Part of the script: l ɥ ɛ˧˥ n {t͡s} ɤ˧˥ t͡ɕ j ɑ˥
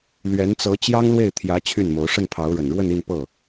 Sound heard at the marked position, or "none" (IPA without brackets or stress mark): t͡s